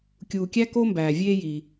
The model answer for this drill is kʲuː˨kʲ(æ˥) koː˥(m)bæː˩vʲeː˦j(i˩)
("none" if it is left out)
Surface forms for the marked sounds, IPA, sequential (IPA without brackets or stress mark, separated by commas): æ˥, m, i˩